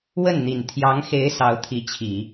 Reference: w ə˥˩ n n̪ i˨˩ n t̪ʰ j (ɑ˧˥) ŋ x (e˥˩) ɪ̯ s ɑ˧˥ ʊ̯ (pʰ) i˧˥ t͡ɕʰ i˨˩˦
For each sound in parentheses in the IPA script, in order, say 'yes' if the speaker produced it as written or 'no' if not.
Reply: yes, no, no

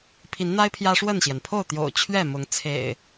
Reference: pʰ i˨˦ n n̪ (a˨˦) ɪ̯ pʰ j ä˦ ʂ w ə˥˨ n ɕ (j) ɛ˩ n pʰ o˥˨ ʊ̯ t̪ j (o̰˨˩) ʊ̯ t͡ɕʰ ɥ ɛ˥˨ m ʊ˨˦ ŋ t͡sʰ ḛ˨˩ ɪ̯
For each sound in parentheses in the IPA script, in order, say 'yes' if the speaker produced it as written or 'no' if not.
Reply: no, yes, yes

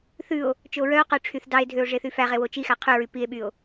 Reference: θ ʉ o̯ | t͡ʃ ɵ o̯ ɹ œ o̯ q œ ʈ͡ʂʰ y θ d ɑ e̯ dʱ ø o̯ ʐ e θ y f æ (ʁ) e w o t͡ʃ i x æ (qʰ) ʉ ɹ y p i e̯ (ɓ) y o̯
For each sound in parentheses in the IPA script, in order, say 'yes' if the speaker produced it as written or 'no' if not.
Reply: yes, yes, yes

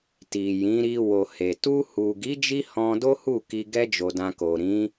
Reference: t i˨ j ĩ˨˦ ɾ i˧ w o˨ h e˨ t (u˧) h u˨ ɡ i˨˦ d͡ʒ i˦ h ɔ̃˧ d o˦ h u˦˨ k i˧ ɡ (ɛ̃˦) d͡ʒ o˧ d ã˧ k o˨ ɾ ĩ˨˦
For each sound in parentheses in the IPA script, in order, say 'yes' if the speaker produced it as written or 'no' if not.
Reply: yes, no

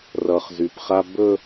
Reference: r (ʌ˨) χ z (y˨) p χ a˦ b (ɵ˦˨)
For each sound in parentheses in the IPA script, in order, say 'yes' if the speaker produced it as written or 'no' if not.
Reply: yes, yes, no

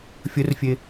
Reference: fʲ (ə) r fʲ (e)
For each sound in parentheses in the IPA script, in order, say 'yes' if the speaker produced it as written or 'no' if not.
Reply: yes, yes

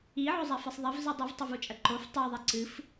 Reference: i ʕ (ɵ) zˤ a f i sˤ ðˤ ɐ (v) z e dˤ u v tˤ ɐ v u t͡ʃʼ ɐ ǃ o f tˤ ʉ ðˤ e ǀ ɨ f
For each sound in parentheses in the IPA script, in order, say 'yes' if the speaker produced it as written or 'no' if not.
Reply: yes, yes

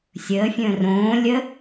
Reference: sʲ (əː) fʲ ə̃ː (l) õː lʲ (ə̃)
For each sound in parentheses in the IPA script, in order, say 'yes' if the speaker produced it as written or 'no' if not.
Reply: yes, no, no

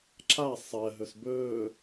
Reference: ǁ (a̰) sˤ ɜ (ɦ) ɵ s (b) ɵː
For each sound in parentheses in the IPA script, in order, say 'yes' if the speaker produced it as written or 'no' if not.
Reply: no, yes, yes

